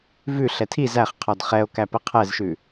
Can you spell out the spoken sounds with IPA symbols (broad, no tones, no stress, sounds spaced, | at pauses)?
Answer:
v ʉ ɬ ɛ tʰ i z æ χ qʰ ɔ d χ ɛ o̯ k æ p ə qʰ ɛ z ʃ ʉ